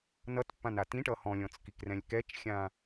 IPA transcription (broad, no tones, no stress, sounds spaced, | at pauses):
n ʌ t pː ã n a t ĩ ʈ ʌ h ɔ̃ lʲ ɔ̃ t͡s k i k r ɛ̃ lʲ k ɛ t͡ʃ xʲ ã